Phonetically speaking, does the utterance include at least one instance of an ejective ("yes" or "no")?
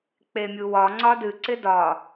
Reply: no